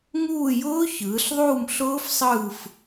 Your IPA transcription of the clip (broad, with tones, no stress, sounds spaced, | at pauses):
ŋ uː˦˨ j ʊː˦˥ ç ɯː˩˧ ɬ ðˤ uː˦˨ m ɬ ʊː˦˥ f sˤ ɯː˦˨ f